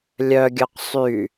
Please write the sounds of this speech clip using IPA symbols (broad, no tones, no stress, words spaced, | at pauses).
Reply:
lʲœɡʲœq sˤy